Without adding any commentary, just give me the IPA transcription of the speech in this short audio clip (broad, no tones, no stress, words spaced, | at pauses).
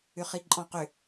ʏχiǃʼɔ̃qʏ